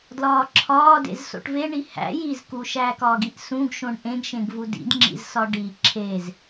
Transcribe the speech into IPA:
dlɒːǁʰɒːdḛz so̰ʈveɳi hæ̰ jizku ʃæːkɒːɡiʔ sũɡʃõɳ ʔẽɡʃẽɡvu dḭdŋ͡ǁḭzsɒ ɖi ǁʰez

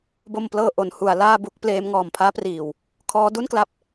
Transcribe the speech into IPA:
bo˧mplɤː˧ ʔo˩˦nhu˩˦a̯ laː˥˩bu˦˥k̚pleː˦˥m ŋɔː˨˩mpʰaː˦˥priː˨˩w | kʰɔː˦˥du˥˩nkla˦˥p̚

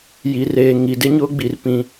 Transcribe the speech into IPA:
ji˨reː˨ ŋi˨dɪ˦ɲʊ˦ɡ͡bi˨r pĩ˦

